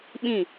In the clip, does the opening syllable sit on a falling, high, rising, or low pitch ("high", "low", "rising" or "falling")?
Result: falling